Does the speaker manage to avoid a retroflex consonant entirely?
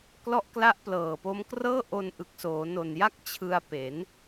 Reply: yes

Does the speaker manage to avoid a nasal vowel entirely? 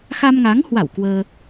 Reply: yes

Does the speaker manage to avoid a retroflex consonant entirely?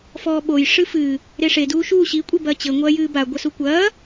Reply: no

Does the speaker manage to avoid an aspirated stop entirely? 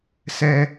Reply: yes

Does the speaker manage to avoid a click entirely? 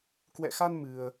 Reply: yes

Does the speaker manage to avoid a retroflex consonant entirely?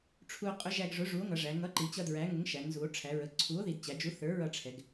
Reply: no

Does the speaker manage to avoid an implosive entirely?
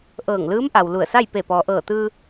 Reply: yes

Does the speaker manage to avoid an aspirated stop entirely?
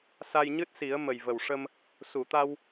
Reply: yes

